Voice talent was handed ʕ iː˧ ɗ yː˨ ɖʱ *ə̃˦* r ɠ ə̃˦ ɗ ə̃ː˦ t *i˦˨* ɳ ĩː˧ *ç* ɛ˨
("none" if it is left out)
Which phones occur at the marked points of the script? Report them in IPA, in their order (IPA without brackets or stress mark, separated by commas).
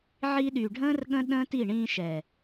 ə̃ː˦, i˦˨, ʃ